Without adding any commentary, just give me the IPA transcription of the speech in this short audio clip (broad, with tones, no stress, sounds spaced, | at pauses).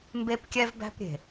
m b e˦ p kʲ ɛ˦ v b æ̤˦ p ɾʲ e̤˨